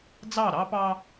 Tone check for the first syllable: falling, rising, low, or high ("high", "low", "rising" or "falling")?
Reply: falling